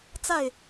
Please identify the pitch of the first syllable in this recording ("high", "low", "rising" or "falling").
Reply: falling